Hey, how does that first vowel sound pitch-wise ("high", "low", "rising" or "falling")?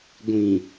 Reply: low